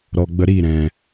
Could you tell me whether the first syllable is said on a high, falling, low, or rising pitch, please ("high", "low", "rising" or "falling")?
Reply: low